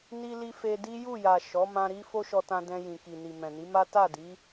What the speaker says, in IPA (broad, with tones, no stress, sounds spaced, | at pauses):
n i˧ l i˧ f e˧ d i˦ j u˦˨ j a˨ ʃ ɔ˨˦ m ã˧ ɾ i˦ f o˦ ʃ ɔ˧ t ã˧ d ɛ̃˧ j ĩ˨ k i˨ n i˨ m ɛ̃˨ n i˨˦ m a˦ t a˦˨ d i˨˦